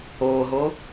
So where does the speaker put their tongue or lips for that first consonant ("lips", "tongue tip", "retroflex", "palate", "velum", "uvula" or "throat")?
throat